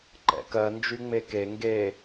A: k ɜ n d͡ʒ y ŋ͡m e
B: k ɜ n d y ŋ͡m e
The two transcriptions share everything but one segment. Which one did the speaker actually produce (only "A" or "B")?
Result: A